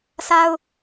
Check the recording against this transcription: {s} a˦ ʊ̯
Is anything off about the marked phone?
no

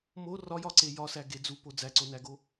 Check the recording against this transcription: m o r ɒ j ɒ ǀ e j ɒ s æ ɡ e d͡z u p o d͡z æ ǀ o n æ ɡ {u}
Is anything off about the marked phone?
yes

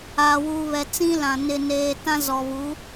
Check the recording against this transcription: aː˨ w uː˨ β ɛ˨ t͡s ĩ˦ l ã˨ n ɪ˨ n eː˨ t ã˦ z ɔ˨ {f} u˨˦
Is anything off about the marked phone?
yes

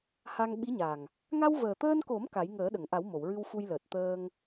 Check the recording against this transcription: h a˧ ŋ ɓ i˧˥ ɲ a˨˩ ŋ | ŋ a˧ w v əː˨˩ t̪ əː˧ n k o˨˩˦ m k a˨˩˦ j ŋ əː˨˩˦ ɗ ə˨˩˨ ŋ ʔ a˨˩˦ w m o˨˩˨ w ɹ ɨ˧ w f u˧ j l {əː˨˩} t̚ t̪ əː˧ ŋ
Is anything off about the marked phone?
no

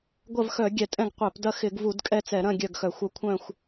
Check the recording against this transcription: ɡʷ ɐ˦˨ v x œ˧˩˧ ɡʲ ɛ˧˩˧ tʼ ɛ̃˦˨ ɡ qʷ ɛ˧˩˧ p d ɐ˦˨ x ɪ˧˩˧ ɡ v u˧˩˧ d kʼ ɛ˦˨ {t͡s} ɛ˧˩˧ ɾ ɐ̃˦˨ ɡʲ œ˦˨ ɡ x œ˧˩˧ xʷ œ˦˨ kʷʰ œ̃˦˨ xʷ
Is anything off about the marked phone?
no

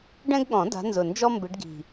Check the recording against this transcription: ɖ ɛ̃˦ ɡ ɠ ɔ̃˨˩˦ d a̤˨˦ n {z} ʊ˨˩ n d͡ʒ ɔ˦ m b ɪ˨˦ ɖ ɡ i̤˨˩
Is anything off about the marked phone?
no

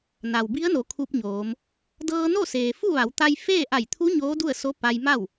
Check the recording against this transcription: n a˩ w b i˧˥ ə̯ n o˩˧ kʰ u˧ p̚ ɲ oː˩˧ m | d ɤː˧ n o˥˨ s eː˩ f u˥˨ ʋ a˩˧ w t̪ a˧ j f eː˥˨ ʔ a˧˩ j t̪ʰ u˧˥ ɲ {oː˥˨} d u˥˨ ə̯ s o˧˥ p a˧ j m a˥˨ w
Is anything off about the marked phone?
yes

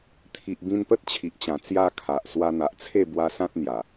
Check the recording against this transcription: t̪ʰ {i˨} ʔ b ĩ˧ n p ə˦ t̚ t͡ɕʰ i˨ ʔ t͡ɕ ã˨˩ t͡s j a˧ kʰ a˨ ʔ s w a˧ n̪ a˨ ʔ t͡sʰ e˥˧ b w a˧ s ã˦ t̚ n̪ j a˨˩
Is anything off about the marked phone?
no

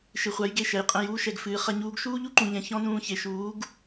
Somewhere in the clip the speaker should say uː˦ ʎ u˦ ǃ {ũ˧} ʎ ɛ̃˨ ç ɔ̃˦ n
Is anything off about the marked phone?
yes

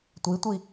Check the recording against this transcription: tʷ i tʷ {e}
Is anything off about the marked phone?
yes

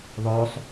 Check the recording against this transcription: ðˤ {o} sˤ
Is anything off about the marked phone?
no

